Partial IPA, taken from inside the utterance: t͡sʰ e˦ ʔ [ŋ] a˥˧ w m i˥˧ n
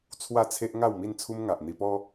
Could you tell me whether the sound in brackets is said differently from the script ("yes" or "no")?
no